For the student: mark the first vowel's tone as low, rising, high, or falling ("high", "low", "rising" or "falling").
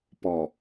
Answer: low